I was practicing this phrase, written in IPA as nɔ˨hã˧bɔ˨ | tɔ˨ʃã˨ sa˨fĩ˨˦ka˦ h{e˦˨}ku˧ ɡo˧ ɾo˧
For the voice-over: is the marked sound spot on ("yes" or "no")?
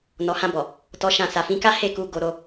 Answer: yes